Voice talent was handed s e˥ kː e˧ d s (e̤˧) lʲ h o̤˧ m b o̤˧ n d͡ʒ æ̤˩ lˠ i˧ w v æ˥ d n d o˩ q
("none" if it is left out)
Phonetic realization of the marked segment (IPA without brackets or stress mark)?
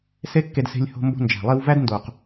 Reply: e̤˧